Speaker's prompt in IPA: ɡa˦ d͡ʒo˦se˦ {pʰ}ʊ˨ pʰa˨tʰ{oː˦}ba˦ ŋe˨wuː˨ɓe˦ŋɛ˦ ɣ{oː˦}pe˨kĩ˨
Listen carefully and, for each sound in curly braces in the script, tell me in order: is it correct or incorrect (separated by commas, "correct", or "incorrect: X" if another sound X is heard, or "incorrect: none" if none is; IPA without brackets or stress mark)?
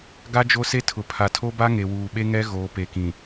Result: incorrect: tʰ, incorrect: o˦, incorrect: oː˨